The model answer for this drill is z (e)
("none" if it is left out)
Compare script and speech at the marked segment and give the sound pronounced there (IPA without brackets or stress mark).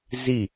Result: i